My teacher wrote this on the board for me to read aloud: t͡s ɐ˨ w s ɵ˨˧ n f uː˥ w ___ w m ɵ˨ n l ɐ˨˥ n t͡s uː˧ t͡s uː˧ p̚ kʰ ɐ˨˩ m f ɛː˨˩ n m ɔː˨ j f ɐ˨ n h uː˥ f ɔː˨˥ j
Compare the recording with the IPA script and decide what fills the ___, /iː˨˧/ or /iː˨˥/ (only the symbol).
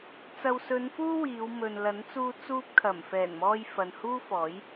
iː˨˧